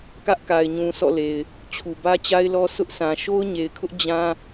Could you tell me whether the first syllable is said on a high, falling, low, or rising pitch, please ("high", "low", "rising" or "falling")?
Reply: high